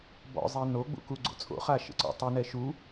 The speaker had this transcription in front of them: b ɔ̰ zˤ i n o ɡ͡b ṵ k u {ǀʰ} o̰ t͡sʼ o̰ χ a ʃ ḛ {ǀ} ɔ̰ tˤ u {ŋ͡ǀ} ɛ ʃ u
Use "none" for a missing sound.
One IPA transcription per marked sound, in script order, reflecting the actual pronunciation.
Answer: ɡ͡ǀ, ǀ, n

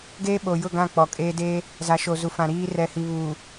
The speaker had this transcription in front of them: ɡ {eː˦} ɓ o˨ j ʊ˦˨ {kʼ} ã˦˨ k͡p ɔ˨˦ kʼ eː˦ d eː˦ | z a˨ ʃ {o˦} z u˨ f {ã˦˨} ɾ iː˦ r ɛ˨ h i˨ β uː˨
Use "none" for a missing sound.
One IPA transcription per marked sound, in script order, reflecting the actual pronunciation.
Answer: eː˦, ɡ, o˨, ã˨

